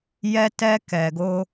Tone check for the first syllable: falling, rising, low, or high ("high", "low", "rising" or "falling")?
high